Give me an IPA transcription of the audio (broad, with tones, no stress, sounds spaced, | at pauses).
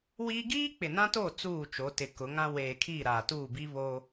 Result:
w iː˦ ɡ iː˦ k͡p ɪ˨ n ã˦ t oː˦˨ t͡s uː˦˨ t͡ʃ o˨˦ t ɪ˨ k ʊ˨˦ ŋ ã˦ w eː˨ kʰ iː˦˨ ɾ aː˨ t uː˦˨ b i˦ β oː˦